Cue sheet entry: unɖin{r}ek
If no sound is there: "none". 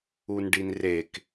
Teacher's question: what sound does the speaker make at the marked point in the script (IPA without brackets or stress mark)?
r